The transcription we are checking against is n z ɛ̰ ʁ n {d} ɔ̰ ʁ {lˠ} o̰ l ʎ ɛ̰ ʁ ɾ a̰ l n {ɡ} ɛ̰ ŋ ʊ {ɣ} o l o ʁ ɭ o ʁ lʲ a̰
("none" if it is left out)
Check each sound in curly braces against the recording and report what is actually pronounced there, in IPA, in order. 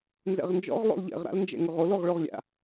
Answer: d͡ʒ, lˠ, d͡ʒ, ʁ

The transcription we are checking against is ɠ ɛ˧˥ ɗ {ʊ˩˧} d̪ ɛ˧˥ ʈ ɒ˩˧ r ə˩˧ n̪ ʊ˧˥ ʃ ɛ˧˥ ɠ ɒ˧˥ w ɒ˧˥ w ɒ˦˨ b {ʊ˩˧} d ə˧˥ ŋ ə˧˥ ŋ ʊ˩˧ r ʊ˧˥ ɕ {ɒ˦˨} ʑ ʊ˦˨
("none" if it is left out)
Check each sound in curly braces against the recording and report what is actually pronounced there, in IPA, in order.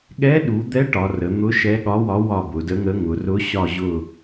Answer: u˩˧, ʊ˩˧, ɒ˦˨

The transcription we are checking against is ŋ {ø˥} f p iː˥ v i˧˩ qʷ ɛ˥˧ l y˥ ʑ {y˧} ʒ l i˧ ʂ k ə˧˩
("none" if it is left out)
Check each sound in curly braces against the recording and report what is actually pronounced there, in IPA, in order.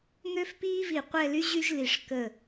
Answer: ø˥, y˥

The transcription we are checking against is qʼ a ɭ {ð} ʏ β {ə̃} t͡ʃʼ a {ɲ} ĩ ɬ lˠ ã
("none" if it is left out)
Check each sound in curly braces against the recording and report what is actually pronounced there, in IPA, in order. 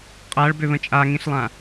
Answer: b, ə̃, ŋ

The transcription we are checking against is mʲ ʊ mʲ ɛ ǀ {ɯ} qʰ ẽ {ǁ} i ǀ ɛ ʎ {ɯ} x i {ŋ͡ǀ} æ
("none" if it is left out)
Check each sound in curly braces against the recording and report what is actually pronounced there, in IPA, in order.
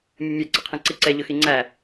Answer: ɯ, ǀ, ʊ, ŋ͡ǀ

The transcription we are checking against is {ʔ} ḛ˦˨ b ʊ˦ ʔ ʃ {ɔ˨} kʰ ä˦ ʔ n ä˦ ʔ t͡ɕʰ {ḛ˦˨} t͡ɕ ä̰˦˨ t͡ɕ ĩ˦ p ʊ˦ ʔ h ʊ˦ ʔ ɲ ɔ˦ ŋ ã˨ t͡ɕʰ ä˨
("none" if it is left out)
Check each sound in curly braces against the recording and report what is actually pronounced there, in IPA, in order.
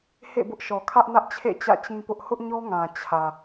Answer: h, ɔ˨, ḛ˦˨

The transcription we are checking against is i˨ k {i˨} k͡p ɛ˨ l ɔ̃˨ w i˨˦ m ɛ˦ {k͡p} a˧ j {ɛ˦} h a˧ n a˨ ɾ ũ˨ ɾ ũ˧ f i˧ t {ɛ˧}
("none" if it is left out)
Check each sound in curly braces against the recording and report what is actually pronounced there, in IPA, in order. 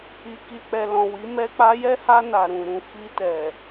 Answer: i˨, k͡p, ɛ˦, ɛ˨

